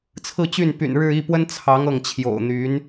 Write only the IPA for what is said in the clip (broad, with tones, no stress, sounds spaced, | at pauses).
t͡sʰ ɹ̩˥˧ t͡ɕ y˥˩ n p y̰˨˩ n ɻ ɻ̩˥˧ i˥˩ p w ə˥ n t͡sʰ ɑ˧˥ ŋ ɤ˥˩ ŋ t͡ɕʰ j o̰˨˩ ʊ̯ n̪ y˧˥ n